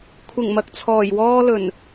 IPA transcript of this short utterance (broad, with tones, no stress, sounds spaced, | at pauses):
kʷʰ ɪ˨˩ ŋ m ɐ˨ k̚ t͡sʰ ɔː˨˩ j w ɔː˥ l ɵ˨˩ n